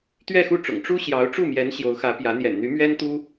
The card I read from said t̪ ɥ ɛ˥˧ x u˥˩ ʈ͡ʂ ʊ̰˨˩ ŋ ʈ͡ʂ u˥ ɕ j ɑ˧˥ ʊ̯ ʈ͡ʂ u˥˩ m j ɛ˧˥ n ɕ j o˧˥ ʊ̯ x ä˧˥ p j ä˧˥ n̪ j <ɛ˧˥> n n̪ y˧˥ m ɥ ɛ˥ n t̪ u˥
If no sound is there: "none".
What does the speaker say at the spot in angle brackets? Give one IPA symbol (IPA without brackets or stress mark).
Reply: ɛ̰˨˩